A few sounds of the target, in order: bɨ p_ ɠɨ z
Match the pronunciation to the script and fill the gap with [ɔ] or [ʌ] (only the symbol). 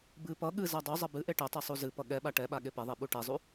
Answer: ʌ